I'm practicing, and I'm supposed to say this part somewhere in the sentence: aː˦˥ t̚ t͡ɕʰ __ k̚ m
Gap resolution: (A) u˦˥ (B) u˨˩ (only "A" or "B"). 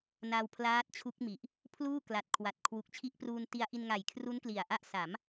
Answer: A